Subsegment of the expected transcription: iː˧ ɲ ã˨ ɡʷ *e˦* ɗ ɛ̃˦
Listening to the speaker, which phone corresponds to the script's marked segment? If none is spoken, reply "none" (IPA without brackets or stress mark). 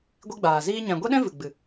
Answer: e˦